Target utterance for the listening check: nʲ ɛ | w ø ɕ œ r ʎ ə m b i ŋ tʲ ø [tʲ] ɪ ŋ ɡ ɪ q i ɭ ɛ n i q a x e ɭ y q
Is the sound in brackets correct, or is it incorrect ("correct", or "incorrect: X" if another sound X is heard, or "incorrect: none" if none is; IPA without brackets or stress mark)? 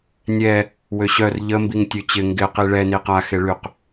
incorrect: t͡ɕ